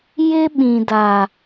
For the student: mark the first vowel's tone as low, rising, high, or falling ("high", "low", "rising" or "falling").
high